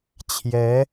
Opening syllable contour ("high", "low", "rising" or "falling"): rising